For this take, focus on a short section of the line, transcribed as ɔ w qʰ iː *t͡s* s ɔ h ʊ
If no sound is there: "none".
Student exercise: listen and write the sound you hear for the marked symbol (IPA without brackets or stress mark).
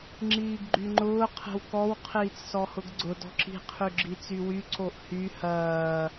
t͡s